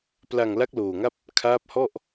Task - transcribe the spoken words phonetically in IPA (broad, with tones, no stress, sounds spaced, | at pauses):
p l a˧ ŋ l a˦˥ k̚ l oː˧ ŋ a˥˩ p̚ | kʰ aː˦˥ p̚ h ɔ˥˩ ʔ